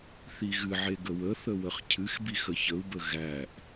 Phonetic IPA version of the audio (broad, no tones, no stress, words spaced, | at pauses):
θiɣɨʕe ɡəwəθə wəχcʰɨxbix əçəu̯bə ɣæʔ